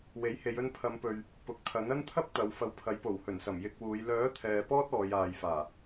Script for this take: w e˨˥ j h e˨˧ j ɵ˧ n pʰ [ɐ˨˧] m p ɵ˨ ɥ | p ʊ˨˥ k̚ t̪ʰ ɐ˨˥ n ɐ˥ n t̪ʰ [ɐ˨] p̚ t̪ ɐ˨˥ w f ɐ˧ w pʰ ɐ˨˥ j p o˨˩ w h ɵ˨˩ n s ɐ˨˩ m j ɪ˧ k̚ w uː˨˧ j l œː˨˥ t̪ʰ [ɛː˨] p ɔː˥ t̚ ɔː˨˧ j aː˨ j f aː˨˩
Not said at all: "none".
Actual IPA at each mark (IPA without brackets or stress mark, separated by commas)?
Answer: ɐ˨˧, ɐ˥, ɛː˨